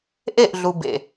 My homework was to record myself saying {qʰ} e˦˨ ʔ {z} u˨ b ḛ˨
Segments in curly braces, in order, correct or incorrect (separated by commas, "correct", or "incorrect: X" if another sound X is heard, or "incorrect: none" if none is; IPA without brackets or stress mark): incorrect: ʔ, incorrect: ɮ